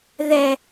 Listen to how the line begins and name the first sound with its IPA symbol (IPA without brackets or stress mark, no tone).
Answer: ð